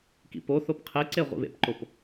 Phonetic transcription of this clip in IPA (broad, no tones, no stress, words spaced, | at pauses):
kḭpoθop qʰeǀe ʁʷḭβḛpǃop